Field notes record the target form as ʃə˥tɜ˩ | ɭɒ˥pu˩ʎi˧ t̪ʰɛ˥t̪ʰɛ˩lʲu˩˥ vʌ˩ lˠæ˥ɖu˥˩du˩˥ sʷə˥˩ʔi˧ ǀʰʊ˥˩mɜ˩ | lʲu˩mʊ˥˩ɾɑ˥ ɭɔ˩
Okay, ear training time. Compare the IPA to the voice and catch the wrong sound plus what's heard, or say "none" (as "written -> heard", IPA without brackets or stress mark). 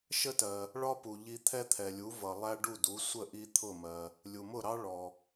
ǀʰ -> t̪ʰ